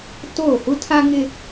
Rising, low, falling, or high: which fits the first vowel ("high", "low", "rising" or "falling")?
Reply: falling